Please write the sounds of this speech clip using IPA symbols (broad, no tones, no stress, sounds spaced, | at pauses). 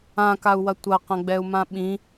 ã k a u̯ w ɐ tʷ ɐ q ɐ̃ ɡ͡b ɛ u̯ m ã ɓ ĩ